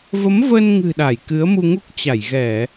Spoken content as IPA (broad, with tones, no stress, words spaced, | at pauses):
və˨˦mvə˧nŋɨ̤˨˩ ɗa˧˩jkɨ˨˦ə̯mu˧ŋu˦˥k̚ t͡ɕa˧˩jɣɛ˧˩˨